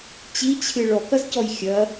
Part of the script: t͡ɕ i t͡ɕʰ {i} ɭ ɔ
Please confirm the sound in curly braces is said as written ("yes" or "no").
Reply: no